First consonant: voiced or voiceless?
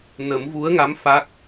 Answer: voiced